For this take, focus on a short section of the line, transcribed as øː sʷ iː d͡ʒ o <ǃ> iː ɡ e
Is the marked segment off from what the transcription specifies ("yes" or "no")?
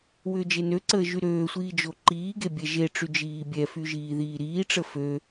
no